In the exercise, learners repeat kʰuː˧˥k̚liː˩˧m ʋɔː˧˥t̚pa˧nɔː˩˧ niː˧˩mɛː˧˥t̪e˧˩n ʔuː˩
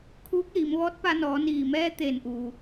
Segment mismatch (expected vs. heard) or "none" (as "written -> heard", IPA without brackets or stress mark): none